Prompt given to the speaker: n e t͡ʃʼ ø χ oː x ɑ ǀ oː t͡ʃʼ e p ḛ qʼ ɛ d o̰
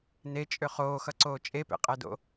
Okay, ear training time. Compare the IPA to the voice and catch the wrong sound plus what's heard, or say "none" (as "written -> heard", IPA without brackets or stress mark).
ɑ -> ʌ